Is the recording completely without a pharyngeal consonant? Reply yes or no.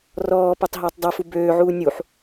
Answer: no